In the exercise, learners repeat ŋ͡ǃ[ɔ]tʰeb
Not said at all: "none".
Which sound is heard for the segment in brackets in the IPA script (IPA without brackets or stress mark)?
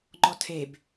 ɔ